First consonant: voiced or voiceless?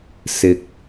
voiceless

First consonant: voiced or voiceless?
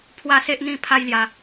voiceless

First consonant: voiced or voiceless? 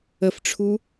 voiceless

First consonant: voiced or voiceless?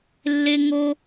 voiced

